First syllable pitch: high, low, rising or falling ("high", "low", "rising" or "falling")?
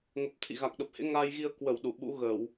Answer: low